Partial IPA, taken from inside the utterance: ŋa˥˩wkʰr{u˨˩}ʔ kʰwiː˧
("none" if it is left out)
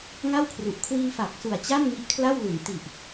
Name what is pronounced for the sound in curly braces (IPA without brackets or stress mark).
u˨˩